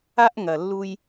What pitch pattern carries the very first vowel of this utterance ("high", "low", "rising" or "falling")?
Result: high